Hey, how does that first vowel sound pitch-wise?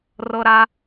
high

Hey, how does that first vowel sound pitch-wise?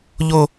high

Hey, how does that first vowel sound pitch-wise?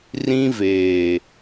high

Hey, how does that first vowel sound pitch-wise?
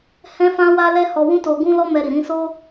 high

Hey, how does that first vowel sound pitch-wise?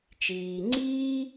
low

